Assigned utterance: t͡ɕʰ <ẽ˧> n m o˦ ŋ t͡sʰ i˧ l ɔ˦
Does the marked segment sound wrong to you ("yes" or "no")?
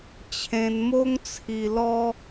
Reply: no